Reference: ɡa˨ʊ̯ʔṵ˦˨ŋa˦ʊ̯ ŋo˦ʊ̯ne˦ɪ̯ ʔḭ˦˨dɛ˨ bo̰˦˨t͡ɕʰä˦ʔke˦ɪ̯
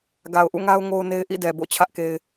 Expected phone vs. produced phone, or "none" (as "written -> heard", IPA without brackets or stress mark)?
none